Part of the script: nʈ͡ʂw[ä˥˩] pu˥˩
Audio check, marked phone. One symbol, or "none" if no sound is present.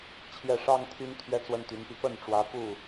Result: ä˧˥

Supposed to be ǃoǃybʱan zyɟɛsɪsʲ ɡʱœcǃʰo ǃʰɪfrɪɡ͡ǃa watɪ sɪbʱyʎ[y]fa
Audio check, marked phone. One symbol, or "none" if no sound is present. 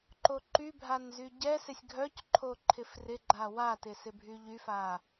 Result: y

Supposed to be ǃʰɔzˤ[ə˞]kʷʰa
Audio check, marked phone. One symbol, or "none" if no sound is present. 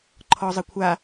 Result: ə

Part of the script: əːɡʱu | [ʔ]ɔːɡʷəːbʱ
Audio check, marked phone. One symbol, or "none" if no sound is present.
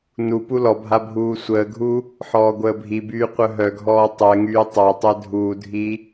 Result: ħ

